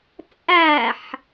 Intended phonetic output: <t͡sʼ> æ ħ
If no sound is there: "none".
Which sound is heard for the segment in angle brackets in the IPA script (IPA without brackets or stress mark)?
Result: t͡sʼ